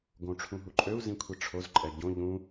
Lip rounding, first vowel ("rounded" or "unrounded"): rounded